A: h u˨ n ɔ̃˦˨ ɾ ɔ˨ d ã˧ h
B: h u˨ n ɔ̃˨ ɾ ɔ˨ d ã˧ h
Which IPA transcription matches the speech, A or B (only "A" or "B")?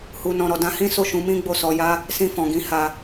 B